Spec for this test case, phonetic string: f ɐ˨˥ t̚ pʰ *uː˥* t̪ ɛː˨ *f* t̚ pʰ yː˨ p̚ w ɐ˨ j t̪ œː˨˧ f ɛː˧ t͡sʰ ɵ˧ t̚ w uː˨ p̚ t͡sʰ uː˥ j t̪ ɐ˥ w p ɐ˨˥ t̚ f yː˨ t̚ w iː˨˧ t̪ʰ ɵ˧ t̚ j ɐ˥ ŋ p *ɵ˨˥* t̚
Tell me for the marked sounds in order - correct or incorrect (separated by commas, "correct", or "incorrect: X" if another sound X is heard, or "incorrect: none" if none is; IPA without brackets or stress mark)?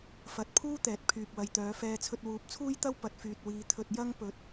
correct, incorrect: none, incorrect: ɵ˨